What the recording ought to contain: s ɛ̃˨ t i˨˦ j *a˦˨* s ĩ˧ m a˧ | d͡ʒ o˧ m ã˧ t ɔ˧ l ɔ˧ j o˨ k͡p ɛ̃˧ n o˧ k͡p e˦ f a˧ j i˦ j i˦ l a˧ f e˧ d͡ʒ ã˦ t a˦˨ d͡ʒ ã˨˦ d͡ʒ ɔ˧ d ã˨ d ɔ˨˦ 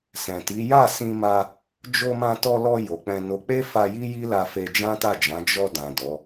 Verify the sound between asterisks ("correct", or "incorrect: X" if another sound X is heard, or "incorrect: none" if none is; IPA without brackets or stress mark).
correct